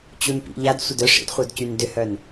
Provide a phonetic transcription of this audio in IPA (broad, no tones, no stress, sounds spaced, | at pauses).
t͡ɕ u n p ḭ ʎ a d sʷ ə d œ ʂ ḭ d χʷ œ d c y n d ʏ h œ n